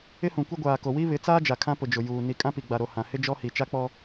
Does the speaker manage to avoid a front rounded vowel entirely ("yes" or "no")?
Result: yes